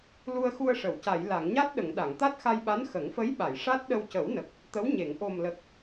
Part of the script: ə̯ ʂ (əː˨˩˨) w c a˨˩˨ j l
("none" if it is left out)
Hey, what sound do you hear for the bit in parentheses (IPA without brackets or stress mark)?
ə˨˩˨